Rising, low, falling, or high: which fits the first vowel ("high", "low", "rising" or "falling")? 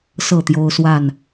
falling